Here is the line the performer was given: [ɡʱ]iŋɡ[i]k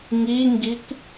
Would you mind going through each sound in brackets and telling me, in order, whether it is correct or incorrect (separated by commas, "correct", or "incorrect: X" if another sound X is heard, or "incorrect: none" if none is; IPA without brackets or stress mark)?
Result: incorrect: ŋ, correct